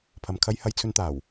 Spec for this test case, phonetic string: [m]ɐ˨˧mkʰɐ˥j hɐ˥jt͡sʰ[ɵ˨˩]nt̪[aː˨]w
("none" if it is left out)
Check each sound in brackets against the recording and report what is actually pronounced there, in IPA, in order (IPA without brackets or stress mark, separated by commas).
pʰ, ɵ˥, aː˨˩